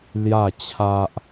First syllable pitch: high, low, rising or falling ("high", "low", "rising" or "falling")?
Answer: falling